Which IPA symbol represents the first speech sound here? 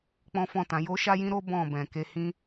k͡p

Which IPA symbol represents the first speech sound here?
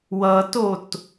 w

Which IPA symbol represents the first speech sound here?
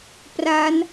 p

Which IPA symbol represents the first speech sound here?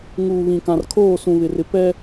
ŋ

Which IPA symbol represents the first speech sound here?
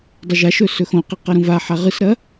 dˤ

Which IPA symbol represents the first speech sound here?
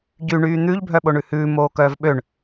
ɟ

